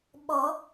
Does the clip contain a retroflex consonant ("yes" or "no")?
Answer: no